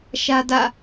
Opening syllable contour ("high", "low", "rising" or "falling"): high